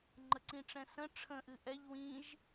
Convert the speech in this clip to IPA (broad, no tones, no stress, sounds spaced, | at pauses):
ŋ͡ǃ ə ǀ ĩ ʈ͡ʂ ɛ̃ s ə̃ ʈ͡ʂʰ ə̃ ʔ ɨ ʔ ɛ ʎ w ĩ ʒ